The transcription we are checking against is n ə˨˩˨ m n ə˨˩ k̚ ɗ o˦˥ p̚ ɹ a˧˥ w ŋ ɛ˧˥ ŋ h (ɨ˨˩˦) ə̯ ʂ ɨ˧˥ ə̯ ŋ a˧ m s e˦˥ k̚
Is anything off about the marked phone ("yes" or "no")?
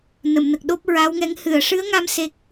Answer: yes